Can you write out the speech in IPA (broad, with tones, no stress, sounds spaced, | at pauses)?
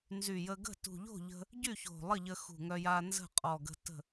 n z y˨˩ j ə˧ ɡ ə̤˥˨ t ṳ˨˩ ʎ o̤˥˨ ʎ ə̤˧ | ɟ y˥˨ ç o̤˨˩ lˠ ə˥˨ ʎ ə˧ x ṳ˨˩ ŋ œ˧ j a˧ n z ə̤˥˨ qʼ ɔ˨˩ ɡ ə̤˧ t ə̤˥˨